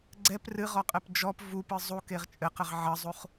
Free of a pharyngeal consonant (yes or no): no